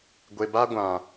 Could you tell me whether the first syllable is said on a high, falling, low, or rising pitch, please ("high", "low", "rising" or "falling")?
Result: low